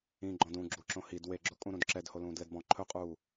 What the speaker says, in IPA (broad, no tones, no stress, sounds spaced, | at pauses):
ĩ ɡ͡ǃ ɔ̃ d ũ ɡ͡ǁ u ǁ õ h i d w e ɡ͡ǁ o kʼ ũ ɾ ũ d ǁ ɛ d h o l ũː d l ɛ d b ɔ̃ ǃʰ ɵ qʼ uː